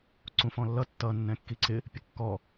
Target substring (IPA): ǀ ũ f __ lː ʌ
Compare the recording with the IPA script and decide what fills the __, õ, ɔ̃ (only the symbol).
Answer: ɔ̃